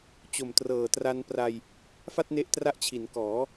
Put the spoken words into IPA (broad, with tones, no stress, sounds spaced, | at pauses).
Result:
t͡ɕ o˨˩ m t r ɤː˨˩ t r a˧ n p r a˧ j | f a˥˩ t̚ n e˦˥ ʔ t r a˦˥ ʔ t͡ɕʰ i˩˦ n k ɔː˩˦